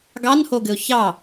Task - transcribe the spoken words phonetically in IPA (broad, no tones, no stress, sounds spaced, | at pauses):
ɡ ɑ n h o ɡ ɘ ʊ̯ ç ɑ